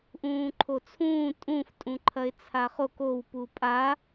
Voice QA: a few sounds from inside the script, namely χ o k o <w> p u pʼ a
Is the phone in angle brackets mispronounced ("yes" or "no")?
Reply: no